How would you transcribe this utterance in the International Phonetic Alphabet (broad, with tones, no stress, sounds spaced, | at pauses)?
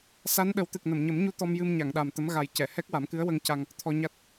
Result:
s a˧˥ n ɗ ə˨˩˦ w t̪ ɨ˨˩ k̚ n ə˨˩˨ m ɲ ə˨˩˦ m ɲ u˧ t̪ ɔ˧ m j ɨ˧ m ɲ a˨˩˨ ŋ ɗ a˨˩ m t̪ ə˧˥ m ɣ a˨˩ j c ɛ˨˩˨ h ɛ˦˥ k̚ w a˨˩˦ m k ɨ˧˥ ə̯ w ə˧ ŋ c a˧ ŋ | t̪ʰ ɔ˧ ɲ a˦˥ t̚